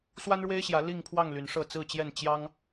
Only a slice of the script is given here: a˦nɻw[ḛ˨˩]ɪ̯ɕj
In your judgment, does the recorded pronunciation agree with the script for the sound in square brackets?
no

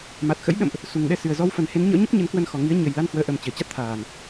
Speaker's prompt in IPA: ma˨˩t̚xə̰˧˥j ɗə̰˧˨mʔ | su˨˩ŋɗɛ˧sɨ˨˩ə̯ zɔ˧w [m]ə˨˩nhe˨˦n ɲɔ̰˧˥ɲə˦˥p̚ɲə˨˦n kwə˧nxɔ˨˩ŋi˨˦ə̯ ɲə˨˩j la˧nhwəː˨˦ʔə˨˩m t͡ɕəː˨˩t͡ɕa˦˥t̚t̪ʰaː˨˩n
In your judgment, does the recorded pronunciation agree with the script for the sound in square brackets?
no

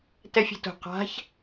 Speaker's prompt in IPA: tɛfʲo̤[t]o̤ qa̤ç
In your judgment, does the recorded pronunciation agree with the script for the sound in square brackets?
yes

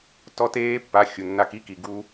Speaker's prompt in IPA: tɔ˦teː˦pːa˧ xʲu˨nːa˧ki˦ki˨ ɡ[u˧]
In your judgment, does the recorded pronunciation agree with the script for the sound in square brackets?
yes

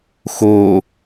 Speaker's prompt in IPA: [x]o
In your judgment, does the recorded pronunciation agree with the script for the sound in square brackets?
yes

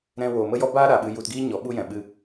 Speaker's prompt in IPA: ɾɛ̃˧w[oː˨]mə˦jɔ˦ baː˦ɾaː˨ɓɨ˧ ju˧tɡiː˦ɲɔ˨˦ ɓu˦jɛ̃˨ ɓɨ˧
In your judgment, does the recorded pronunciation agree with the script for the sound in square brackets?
yes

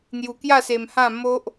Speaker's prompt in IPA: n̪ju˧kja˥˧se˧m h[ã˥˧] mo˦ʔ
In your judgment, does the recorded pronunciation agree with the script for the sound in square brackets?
yes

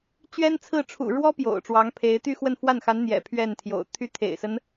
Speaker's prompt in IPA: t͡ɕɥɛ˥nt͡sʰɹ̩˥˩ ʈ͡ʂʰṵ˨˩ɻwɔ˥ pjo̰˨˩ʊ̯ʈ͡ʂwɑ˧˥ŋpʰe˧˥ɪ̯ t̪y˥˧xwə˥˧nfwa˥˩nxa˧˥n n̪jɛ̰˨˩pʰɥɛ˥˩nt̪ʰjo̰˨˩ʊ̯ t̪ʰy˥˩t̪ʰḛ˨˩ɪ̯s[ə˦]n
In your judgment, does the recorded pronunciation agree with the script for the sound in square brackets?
yes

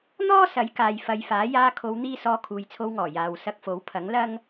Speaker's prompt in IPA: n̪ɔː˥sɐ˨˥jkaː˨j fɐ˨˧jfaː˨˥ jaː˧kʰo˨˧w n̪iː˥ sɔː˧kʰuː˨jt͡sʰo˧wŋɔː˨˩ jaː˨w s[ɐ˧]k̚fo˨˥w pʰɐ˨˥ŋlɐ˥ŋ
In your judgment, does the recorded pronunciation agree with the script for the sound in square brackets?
yes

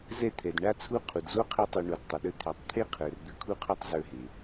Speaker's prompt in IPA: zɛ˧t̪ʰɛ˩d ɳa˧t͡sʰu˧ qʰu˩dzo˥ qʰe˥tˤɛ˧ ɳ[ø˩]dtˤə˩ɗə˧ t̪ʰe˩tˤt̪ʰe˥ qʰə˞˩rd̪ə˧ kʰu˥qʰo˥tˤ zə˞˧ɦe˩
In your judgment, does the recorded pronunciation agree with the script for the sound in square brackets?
no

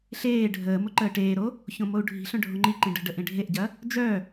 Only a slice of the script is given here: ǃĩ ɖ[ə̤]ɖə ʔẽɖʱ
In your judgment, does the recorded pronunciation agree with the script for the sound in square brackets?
yes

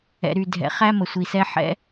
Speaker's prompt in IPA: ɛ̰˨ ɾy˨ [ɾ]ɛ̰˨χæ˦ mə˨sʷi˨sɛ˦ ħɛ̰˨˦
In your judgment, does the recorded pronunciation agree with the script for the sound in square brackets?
no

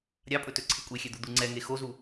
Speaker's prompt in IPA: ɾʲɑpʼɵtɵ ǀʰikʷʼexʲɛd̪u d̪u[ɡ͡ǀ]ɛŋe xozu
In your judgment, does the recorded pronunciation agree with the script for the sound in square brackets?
no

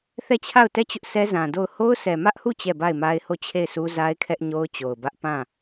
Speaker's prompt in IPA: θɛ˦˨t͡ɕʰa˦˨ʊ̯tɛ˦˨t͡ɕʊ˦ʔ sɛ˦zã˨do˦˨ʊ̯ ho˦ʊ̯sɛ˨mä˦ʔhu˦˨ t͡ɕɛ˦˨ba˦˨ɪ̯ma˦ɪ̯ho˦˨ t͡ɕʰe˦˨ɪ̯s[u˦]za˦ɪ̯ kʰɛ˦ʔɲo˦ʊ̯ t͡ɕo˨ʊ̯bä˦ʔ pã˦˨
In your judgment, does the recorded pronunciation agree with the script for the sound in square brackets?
yes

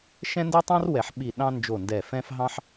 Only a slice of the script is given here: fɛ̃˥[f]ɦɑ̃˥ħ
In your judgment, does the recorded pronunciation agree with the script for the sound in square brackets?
yes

